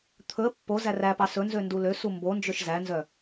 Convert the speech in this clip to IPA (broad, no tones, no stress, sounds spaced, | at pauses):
t̪ʰ ɵ ə̯ pː o z æ r æ p ɑ s ɵ n z ø n d u l ø s u m b o n d͡ʒ ø ʃ z æ n z œ